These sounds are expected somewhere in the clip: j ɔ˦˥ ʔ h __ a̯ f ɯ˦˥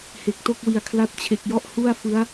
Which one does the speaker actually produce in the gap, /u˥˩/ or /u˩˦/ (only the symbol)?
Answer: u˥˩